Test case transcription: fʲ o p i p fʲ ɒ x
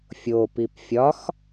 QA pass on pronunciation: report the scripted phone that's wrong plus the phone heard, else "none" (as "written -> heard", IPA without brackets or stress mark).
none